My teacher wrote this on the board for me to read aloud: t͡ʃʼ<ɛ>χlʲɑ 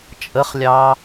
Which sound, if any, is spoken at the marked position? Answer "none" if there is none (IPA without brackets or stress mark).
ə